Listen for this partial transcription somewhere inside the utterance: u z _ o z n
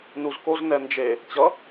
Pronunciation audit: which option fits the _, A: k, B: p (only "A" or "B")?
A